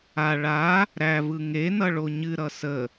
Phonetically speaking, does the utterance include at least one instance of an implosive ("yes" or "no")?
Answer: no